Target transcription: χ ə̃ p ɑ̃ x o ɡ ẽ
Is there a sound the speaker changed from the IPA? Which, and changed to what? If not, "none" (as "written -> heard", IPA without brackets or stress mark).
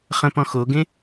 ɑ̃ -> ɔ̃